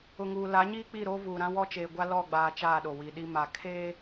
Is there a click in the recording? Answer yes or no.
no